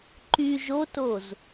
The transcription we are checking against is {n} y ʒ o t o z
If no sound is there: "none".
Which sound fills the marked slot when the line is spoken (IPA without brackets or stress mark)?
ǃ